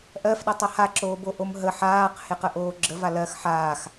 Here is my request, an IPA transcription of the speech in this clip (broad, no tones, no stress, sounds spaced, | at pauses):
ʔ ɜ f ɗ ɛ tˤ ɜ h a ǁ oː b o ʔ o m ɦ ə ħ aː q h e q ə ʔ oː ɡ͡ǁ ə v a l ɜ x ħ aː x